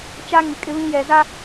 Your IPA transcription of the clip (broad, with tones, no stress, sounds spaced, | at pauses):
t͡ʃ a˦ ŋ i˨ kʼ ɪ˦ β ĩ˦ j ɛ˨ z a˦